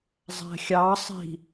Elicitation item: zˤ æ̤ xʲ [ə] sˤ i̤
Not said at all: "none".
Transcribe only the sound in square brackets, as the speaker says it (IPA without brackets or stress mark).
ɑ